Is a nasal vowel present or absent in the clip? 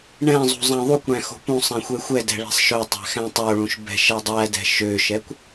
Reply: present